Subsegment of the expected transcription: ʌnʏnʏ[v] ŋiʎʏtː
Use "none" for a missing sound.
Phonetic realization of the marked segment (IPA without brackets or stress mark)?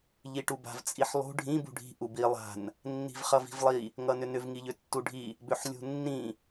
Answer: v